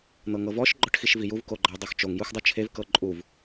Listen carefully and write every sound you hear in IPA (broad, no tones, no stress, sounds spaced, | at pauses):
n̪ ɤ ŋ ɤ v ɔ ʃ ɡ͡ǃ ɔ ʈ x i ʃ v i j u v k o ɡ͡ǃ a dˤ o x t͡ʃ o ŋ j u x dˤ u t͡ʃʰ e v k ɤ ǃʼ u v